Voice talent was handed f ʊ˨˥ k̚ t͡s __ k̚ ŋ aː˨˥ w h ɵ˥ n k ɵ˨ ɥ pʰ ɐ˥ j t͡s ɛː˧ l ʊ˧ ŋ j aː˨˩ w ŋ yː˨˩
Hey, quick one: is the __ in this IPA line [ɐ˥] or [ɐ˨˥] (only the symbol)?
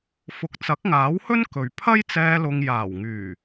ɐ˨˥